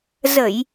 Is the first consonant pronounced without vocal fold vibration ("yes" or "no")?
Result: no